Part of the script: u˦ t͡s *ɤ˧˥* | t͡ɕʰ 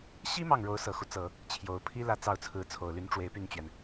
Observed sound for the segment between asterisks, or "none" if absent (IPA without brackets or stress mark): ɤ˨˩˦